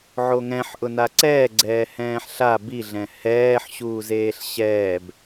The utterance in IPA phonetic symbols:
ʕ o ŋ ɛ̃ ħ ʔ ʊ n a ǀ ɛː ɡ͡ǀ ɛː h ɛ̃ː ħ ɬ a b i ɮ ɛ̃ h ɛː ħ ɕ uː z eː ɬ ɕ ɛː b

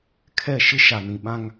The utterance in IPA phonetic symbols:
kʰ ɛ˦˨ ʃ ɪ˦ ʃ a˨ n ĩ˨ ɓ ã˦ ŋ

